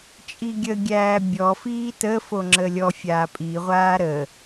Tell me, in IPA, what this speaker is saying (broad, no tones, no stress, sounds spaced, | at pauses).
t͡ʃʼ i ɡʲ ə ɡʲ æː bʲ ɔ f iː t ə f o ŋ͡ǁ ə lʲ ɔ fʲ aː pʼ i ʁʷ aː ɾ ə